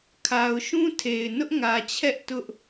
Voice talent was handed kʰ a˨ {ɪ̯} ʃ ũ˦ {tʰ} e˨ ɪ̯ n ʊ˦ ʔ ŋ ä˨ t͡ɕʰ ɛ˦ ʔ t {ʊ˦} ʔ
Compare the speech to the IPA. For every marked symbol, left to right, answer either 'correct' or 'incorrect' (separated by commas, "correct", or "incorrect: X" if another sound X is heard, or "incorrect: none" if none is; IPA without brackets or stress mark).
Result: incorrect: ʊ̯, correct, correct